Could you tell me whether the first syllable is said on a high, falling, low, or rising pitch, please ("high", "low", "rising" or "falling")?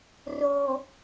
low